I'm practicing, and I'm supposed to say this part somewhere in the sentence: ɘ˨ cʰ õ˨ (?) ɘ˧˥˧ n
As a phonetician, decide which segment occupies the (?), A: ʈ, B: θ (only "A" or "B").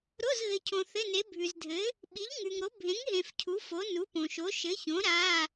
B